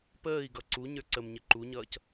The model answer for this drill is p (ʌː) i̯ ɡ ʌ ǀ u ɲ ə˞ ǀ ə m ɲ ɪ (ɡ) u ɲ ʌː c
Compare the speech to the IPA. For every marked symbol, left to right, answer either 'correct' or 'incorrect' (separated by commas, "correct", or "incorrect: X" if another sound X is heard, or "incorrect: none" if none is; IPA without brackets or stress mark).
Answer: incorrect: əː, incorrect: ǃ